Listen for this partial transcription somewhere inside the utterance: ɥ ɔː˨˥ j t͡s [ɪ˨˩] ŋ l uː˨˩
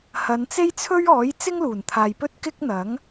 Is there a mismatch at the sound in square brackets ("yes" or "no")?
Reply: yes